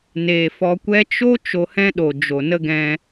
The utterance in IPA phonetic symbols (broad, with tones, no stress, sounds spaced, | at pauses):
n eː˨ f ɔ˧ kʷ ɛ˧ t͡ʃ o˦ t͡ʃ o˧ h ɛ̃˦ ɗ o˨ d͡ʒ o˨ n ə˦ ɡ ɛ̃˧